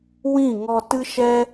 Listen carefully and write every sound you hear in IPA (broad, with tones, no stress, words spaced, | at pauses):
wĩ˦˨ŋɔ˧ tɨ˦ʃɛ˦